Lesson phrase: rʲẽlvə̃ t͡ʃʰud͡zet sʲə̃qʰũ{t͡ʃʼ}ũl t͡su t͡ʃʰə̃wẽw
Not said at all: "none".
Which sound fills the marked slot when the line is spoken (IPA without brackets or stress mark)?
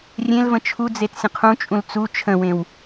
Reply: t͡ʃʼ